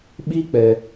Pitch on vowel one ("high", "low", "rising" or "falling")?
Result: high